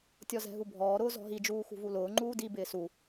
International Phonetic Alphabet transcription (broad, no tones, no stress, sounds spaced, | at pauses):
tʲ ɔ z ɛ̤ ɦ u bʱ ɔː ɾ ʊː z ɔ̤ ɦ i d͡ʒ uː x ṳ v u l ʊː ŋ͡ǃ uː d i b ɪː s u